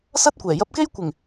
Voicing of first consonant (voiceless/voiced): voiceless